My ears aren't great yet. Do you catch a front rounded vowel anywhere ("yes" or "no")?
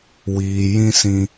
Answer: no